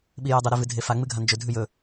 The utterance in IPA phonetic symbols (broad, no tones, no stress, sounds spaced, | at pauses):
ɓ i j ɨ dˤ ɵ ɾ ʉ v ɨ dʱ e f a ŋ͡m ɨ ɡʱ a n d͡ʒ ɵ dʱ ʉ j ɵ